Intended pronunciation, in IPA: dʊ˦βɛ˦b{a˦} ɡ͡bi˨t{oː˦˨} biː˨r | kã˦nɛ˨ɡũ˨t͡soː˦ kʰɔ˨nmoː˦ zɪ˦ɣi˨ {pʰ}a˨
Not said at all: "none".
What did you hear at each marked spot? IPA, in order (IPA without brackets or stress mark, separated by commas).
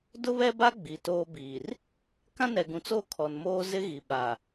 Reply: a˦, oː˦, ɓ